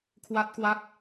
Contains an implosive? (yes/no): no